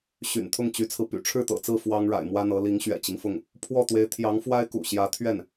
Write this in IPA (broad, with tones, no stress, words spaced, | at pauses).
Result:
ɕy̰˨˩nt̪ʰʊ˥˩ŋt͡ɕy˧˥t͡sʰɹ̩˧ py̰˨˩ʈ͡ʂʰɻ̩˥˩t̪ɤ̰˨˩t͡sɹ̩˥˩ fwɑ˥ŋɻa̰˨˩ɪ̯mwä˥n̪ɤ˧˥ li˧˥ŋ ɕɥɛ̰˨˩t͡ɕi˦ŋfʊ˥˩ŋ | pʰwɔ˥˩t̪we˧˥ɪ̯ t̪ʰjɑ˧˥ŋfwa˥ɪ̯ kṵ˨˩ɕjä˧˥ t̪ʰɥɛ˥˩n